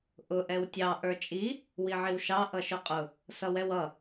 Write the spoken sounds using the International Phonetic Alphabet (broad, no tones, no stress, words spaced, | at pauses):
ʔʊ ʔɛwtʲɑ ʔə˞t͡ʃʼi | wiʕiwʃɑ ʔʌʃʊqʼʊ | sʌwɛwʌ